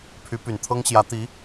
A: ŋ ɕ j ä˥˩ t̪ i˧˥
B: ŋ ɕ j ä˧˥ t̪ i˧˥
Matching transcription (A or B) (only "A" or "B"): B